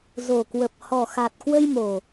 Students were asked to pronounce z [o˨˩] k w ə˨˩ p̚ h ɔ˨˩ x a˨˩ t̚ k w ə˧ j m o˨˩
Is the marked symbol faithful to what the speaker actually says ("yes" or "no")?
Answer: yes